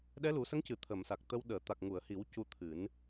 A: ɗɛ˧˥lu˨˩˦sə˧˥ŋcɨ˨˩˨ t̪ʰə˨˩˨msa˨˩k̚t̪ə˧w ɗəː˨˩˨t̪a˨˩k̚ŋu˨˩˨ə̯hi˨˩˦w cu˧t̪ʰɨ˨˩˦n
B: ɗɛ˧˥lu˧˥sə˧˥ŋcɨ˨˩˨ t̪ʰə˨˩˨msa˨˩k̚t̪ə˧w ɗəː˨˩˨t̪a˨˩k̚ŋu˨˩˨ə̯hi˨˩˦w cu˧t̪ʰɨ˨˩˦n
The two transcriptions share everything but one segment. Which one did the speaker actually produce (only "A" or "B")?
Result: A